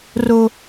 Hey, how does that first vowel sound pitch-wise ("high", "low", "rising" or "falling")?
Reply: high